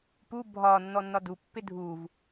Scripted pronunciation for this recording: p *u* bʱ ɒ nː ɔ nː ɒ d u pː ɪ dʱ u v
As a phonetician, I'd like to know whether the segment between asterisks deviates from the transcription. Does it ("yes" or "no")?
no